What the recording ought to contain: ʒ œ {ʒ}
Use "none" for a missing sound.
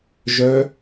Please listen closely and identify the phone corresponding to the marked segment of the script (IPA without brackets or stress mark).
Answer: none